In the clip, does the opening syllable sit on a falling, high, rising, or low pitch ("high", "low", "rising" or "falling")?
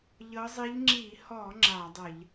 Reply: rising